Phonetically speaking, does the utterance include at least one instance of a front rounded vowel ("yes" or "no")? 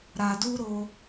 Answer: no